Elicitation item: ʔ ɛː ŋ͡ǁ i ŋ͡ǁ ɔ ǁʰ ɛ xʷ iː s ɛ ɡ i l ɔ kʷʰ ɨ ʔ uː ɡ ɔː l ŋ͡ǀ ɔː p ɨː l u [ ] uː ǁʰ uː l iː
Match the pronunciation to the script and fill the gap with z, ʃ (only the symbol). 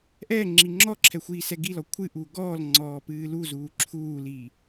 z